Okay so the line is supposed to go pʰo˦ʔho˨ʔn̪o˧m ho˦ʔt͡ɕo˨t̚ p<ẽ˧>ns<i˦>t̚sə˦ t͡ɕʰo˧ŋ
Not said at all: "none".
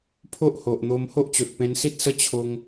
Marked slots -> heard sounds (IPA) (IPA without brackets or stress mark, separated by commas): ẽ˧, i˦